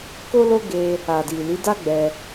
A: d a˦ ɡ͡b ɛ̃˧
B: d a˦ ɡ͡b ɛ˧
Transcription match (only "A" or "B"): B